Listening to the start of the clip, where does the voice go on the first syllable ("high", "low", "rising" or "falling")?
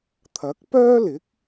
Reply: rising